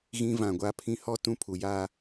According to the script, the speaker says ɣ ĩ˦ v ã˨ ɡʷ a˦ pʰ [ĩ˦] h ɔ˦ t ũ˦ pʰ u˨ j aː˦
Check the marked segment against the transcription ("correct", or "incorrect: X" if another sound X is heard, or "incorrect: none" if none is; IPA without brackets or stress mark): correct